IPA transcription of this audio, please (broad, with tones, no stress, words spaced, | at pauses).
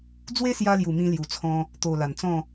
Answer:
d͡zwe˦sja˧lju˨˩ mĩ˧lju˨˩t͡sʰɔ̃˧ | t̪o˨˩ la˨˩nt͡sɔ̃˥˧